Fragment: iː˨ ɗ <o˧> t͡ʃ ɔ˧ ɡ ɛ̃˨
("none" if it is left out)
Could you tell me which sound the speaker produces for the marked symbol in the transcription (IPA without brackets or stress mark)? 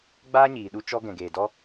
u˧